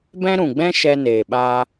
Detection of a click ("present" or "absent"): absent